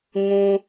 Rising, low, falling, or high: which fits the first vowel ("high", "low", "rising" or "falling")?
high